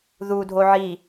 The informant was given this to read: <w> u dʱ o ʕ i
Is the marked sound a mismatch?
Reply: yes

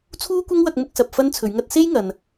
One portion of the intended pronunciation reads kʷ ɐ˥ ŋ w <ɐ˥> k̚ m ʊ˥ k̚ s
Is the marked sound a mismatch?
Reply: yes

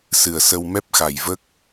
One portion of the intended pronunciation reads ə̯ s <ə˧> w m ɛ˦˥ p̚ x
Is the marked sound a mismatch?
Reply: no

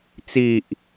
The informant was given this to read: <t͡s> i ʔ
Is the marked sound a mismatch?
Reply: no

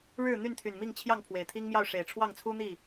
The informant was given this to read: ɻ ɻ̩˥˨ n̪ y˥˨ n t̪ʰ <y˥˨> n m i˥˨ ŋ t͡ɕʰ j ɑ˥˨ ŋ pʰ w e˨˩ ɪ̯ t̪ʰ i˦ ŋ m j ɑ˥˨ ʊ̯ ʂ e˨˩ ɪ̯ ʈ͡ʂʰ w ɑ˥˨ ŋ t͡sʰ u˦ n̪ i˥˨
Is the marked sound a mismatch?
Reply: yes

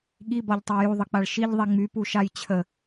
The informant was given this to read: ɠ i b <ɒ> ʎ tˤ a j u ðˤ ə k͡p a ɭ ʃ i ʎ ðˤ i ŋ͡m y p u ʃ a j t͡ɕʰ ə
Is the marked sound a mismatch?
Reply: no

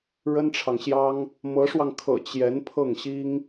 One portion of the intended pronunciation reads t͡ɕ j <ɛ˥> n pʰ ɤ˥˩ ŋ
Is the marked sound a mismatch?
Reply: yes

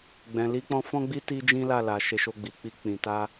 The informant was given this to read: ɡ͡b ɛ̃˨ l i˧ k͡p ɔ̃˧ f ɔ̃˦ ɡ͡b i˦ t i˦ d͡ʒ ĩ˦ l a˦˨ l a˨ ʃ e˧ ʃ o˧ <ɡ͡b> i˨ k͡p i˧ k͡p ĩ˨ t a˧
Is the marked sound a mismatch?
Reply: no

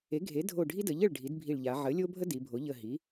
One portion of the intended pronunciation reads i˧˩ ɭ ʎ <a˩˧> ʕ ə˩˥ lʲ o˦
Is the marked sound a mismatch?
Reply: no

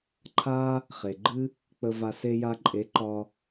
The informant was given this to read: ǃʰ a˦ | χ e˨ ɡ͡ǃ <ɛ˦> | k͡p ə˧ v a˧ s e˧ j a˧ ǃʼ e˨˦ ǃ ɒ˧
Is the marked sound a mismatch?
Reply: yes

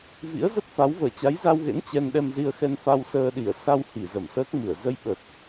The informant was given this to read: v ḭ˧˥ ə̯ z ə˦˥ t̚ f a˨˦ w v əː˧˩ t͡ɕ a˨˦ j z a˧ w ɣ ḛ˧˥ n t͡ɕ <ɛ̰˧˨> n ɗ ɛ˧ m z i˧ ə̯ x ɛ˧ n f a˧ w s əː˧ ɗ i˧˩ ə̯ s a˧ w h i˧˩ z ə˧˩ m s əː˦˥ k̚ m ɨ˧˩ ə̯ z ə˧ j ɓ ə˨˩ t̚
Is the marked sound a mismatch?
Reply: yes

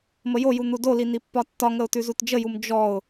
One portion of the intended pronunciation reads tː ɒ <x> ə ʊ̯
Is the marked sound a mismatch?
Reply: yes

